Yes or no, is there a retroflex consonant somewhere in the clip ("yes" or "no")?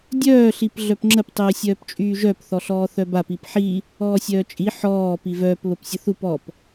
no